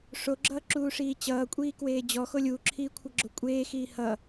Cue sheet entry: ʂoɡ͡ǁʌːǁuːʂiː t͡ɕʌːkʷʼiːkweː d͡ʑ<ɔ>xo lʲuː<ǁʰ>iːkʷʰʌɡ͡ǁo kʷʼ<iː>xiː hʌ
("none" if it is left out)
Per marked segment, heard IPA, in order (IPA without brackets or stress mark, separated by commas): ɔ, ǁʰ, eː